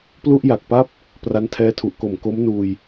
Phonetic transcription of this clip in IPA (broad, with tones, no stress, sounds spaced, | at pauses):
p l u˥˩ ʔ j a˨˩ k̚ p a˥˩ p̚ | p r a˦˥ n tʰ ɛː˦˥ tʰ u˨˩ ʔ k o˨˩ m k o˦˥ m n uː˧ j